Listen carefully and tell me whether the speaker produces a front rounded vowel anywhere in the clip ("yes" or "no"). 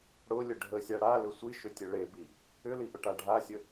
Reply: yes